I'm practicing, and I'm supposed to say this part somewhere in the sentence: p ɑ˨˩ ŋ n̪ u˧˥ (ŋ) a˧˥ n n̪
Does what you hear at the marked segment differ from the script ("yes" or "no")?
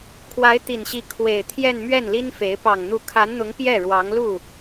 yes